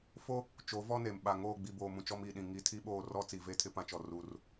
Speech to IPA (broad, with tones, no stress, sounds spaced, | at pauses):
f o˦ | t͡ʃ o˨˦ v ɔ˦ n e˨ m ɓ a˨ ŋ oː˦˨ ɡ͡b i˨ b oː˨ m ũ˨ t͡ʃ ɔ˦ m iː˨ ɗ ĩ˨ ŋ i˨˦ tʰ i˦ ɓ oː˦˨ r ɔ˦ t͡s i˨ v e˦ tʰ ɪ˦ p ã˦ t͡ʃ ɔ˨ r uː˦ r